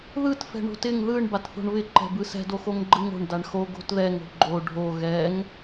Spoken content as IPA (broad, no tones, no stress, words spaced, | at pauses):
ðɯt fɛ̤ɳo̤tɪŋ ðɯɳ batθo̤ɳβɪ ǃɛ̤bɯsɛ̤ doxoŋɡ͡ǃɯŋo̤ɳ daɳxo ɡo̤tðɛŋ o̤ɡ͡ǃo ɖʱo ɣɛŋ